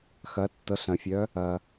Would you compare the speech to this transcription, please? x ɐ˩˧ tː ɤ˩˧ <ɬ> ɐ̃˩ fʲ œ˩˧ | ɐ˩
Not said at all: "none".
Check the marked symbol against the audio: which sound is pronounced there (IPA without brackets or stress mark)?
ɬ